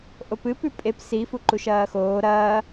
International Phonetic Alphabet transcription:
ʔ o p ɨ p ʉ pʼ e p s i f u ǃ u ʃ ɐː x oː ɾ ɐː

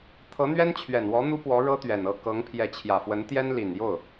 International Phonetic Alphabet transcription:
t̪ʰ ɤ˧˥ n̪ ɥ ɛ˥ n t͡ɕʰ ɥ ɛ˨˩ n w ɔ˧˥ n̪ u˥ p w ɔ˧˥ ɻ ɤ˥ t̪ ɥ ɛ˨˩ n ɤ˥˩ k ɤ˧˥ ŋ pʰ j ɛ˧˥ t͡ɕʰ j ä˨˩ f w ə˧˥ n t̪ j ɛ˥ n l i˨˩ n j o˥˩ ʊ̯

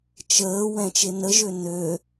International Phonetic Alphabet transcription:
t͡ʃ əː w ɛ̃ t͡ʃ e n ə ʒ ø n ø

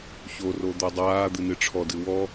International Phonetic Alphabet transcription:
ç o r o d̪ o dˤ aː d̪ ɨ n ɨ ʈ͡ʂʰ ɔ d ɨ w ɔ

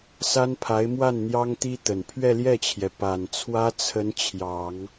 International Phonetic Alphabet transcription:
s a˥ n pʰ a˧˥ ɪ̯ m w a˥˩ n n̪ j ɑ˥ ŋ t̪ i˥ t̪ ə˨˩ n pʰ ɥ ɛ˥˧ l j ɛ˥˩ t͡ɕʰ j ɛ˩ p a˨˩ n t͡sʰ w ä˥ t͡sʰ ə˧˥ n t͡ɕʰ j ɑ˨˩˦ ŋ

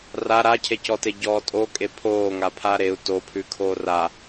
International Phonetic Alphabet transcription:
r a ɾ a cʰ e c ɔ t e ɟ ɔː tʼ o kʼ e pʰ oː ŋ a pʰ a ɾ e u̯ t o pʰ ʉ kʰ oː r a

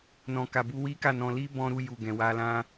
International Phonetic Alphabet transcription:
n ɔ̃˨ k a˨ b u˧ w i˦ k a˦˨ n ɔ̃˧ l i˦ b ɔ̃˧ ɾ u˧ j u˨ ɡ ɛ̃˨ w a˧ l ã˦

